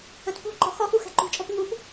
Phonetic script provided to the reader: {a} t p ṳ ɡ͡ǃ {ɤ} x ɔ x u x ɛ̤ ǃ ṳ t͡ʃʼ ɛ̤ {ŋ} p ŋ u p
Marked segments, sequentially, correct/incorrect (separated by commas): incorrect, incorrect, incorrect